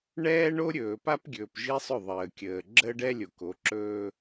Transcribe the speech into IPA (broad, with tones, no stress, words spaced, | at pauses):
ɳɛː˦ɳo˦ɾʲɵː˨pa˦p ɡʲɵː˨pʒi˦sˤʏ˦˨ ðˤəː˨kʲəː˨ ɡ͡ǁəː˦ɖɛ˦lʲo˨ko˨˦ ǁɵː˦